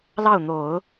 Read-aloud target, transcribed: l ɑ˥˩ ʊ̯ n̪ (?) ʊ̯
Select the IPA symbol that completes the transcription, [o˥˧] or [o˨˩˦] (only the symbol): o˨˩˦